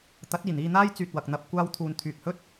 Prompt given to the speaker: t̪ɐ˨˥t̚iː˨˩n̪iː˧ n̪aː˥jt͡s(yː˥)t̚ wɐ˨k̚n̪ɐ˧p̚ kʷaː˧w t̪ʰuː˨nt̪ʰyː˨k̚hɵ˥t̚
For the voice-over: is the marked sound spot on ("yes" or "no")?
no